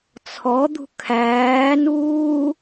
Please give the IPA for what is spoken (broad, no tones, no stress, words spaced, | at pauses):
t͡sʰɔd̪ṳ kʰæːnuː